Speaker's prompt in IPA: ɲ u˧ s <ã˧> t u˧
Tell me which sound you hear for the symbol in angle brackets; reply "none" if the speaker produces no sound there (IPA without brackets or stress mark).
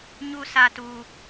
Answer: a˧